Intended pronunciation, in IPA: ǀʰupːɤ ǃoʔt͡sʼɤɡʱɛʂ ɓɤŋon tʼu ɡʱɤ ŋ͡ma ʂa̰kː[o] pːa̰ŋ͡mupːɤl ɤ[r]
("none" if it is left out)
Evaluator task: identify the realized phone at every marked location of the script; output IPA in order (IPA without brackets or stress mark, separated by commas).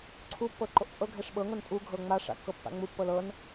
ɤ, n